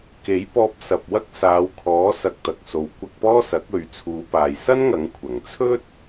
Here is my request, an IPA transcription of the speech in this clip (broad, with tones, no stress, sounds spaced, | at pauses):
k e˨˥ j p ɔː˧ p̚ s ɐ˨ p̚ w ɐ˥ k̚ s aː˨˧ w kʰ ɔː˨˥ s ɐ˧ k̚ t̪ ɐ˨ k̚ s o˨˧ w kʷ ɐ˧ k̚ p ɔː˥ s ɐ˨˥ k̚ ɵ˨˧ ɥ t͡sʰ uː˨˧ p aː˨ j s ɐ˥ n ŋ ɐ˨˧ ŋ kʷʰ ɐ˨˩ ŋ t͡sʰ ɵ˥ t̚